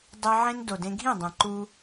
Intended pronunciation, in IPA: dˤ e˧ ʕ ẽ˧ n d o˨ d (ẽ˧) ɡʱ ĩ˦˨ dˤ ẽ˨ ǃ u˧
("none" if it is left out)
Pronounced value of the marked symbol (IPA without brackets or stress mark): ẽ˧